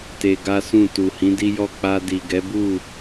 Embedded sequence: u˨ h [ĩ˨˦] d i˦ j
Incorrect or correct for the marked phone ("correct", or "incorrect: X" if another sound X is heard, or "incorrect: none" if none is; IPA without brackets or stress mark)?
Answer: correct